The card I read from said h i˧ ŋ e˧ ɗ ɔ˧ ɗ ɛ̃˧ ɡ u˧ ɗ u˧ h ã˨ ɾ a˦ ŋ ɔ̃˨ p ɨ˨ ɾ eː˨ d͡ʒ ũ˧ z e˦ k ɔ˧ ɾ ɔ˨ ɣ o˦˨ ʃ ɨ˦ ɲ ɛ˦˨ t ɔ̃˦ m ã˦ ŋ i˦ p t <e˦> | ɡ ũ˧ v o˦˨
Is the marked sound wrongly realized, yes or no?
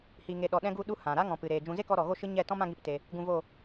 yes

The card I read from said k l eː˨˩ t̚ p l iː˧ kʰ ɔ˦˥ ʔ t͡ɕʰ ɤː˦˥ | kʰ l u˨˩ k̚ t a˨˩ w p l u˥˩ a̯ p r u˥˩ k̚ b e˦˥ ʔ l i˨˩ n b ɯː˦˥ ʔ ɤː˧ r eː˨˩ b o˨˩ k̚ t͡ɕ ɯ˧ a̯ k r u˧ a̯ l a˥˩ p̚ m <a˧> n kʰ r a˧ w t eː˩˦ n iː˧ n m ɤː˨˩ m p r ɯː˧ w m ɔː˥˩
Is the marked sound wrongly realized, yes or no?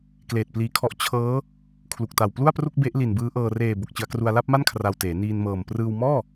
yes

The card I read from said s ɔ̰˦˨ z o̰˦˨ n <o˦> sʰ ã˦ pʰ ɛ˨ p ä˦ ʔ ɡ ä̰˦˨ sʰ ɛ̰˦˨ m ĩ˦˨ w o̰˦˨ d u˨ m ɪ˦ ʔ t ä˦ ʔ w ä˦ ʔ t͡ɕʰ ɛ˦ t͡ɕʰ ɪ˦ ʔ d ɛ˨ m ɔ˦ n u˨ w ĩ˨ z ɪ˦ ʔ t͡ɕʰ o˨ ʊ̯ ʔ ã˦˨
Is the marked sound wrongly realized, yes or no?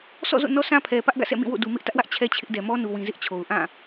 yes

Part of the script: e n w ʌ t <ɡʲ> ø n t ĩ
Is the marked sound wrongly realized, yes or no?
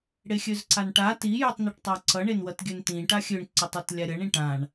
no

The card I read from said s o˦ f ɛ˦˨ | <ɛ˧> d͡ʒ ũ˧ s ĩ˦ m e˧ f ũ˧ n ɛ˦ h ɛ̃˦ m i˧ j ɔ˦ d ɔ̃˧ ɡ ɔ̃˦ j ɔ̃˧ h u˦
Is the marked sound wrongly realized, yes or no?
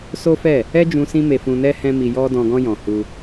yes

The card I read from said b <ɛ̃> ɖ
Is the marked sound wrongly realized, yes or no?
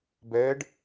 yes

